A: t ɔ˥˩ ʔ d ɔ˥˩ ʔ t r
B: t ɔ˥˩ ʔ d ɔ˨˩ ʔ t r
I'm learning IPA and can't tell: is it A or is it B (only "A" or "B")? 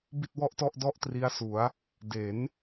A